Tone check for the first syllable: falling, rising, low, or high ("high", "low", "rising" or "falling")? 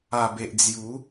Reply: low